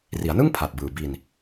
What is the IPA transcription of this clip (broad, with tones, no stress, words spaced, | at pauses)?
ri˩˦a̯nɯ˥˩ŋ pʰa˨˩t̚bɯː˨˩bi˧n